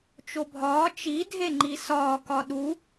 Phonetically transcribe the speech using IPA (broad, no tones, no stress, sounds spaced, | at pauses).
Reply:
t͡ʃ o bʱ ɒː t͡ʃ i dʱ e ŋ͡ǃ i s ɒː k ɒ ɗ u